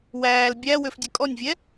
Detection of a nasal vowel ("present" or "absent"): absent